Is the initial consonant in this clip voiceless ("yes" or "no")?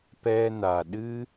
yes